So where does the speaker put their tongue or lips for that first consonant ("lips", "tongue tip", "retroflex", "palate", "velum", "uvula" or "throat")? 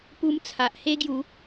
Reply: lips